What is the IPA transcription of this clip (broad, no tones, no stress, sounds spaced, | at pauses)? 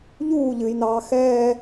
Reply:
ʎ uː ʎ ɨ j n ɑː x ɛː